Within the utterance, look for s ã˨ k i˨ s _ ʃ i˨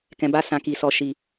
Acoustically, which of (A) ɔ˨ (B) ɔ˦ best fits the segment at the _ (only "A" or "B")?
A